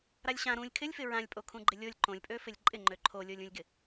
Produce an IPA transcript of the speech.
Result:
ɾ a lʲ ɕ ã ɾ ũ lʲ kʰ ɪ lʲ f ɪ ɹ ã lʲ pʼ o kʰ ũ ɡ͡ǃ ɪ lʲ o lʲ ǃ õ lʲ pʼ ø f ɪ lʲ ǃʼ ɪ ŋ͡ǃ ø ǃʰ o lʲ o lʲ ũ lʲ ɡ ɪ

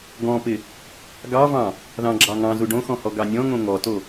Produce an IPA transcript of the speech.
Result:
ɡ ɔ̃ p ɪ | ɡ ɑ v ɑ̃ | ð ɑ̃ ɡ͡ǁ ɑ ŋ ɑ̃ z u ɖ õ x ɔ̃ h ɔ ɡ ɑ nʲ ɔ̃ ŋ õ ŋ ɔ t o

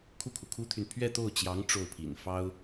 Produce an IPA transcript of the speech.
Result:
kʰ u˥˩ kʰ u˩ kʰ u˥ t̪ʰ y˨ n pʰ ɥ ɛ˥˧ t̪ o˥˩ ʊ̯ t͡ɕ j ɑ˧˥ ŋ ʈ͡ʂ o˥˩ ʊ̯ pʰ ḭ˨˩ n f ɑ˥ ʊ̯

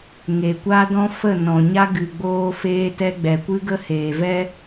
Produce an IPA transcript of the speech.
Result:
ŋ e˨ kʷ a˦ d ɔ̃˦ f ə˦˨ n ɔ̃˨ ɲ a˧ ɡ ɨ˨ ɡ͡b oː˧ f eː˧ t ɛ˧ ɡ͡b ɛ˨ kʷ ɨ˦ ɡ ə˦ h eː˨ v ɛ˧

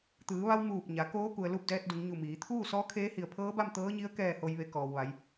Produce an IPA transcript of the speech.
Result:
t̪ ɯː˩˧ ʋ a˧ w m uː˧˩ p̚ ɲ a˩˧ k oː˧˥ k u˩ ə̯ l u˥˨ p̚ d ɛː˧ t̚ d u˩˧ ŋ ɲ u˧˩ m iː˩˧ t̪ʰ uː˥˨ s ɔː˧˥ kʰ eː˧˥ h i˧˩ ə̯ pʰ ɤː˧˥ b a˥˨ m t̪ ɤː˧˥ ɲ i˧˥ ə̯ k ɛː˧˩ h o˩ j ʋ e˩˧ k ɔː˩ w ʋ a˩˧ j

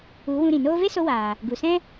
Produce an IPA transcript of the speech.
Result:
u˨˦ w ũ˧ ɾ ĩ˨ n oː˧ v e˦ s o˧ w aː˨ | ɡ u˨ s ɛ̃˦

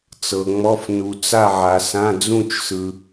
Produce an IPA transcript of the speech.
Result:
t͡s ɤ˨ ŋ͡m ɔ˧˥˧ f n u˨ t͡s a˥˨ ʕ a˨ s ã˧˥˧ d͡z ũ˥˨ t͡ʃ s ɯ˨

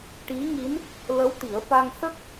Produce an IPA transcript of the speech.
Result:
ʈ i˧˥ ŋ i˧˥ n | l ə˧˥ w t̪ i˨˩˦ ə̯ f a˧ ŋ s ə˦˥ k̚

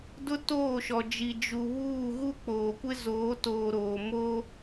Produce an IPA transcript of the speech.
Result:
d ʊ˦ t oː˦˨ ʃ ɔ˨ d͡ʒ i˨ d͡ʒ u˨ β uː˦˨ ɣ u˦ k͡p oː˨ kʷ ɪ˦ z oː˨˦ t oː˨ ɾ oː˨ m o˦

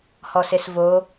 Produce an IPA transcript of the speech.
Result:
h ɔ s e s v o

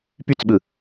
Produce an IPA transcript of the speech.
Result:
p y t͡s ɓ ɯ

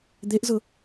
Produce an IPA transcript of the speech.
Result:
d̪ e ʔ z ʊ

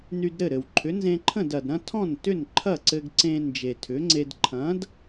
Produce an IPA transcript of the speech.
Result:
n y˧ d ɾ ɘ˥˩ ɾ ɘ˩ w ǃʰ ʏ˩˥ n z ẽ˧ ǃʰ ə̃˥˩ d ɐ˩ d ɾ ɐ̃˥ tʰ ɔ̃˥˩ n t ʏ˥˩ n ǃʰ ɐ˥˩ ǀ ɘ˧ ɡ ǀ ẽ˧ n d͡ʒ e˩ tʰ ʏ˩˥ ŋ͡ǀ e˧ d ǃʰ ɐ̃˩˥ d

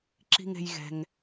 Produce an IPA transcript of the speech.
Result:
ǁ i̤˧ ŋ e̤˧ j ɣ ɛ̤˧ ŋ

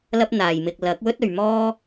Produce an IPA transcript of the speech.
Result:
l ɐ˥ p̚ n̪ aː˨ j m ɪ˧ k̚ l ɐ˨˥ k̚ w ɵ˥ t̚ ɵ˨ ɥ m ɔː˥

